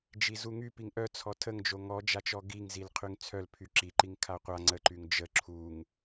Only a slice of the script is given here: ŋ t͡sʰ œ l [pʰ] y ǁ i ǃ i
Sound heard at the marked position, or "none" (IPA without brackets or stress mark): pʰ